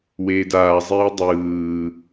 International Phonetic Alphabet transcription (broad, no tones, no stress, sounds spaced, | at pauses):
w eː d aː zˤ eː dˤ ɯː